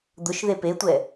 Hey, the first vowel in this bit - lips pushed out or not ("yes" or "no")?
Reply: yes